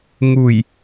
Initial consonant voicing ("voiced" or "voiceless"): voiced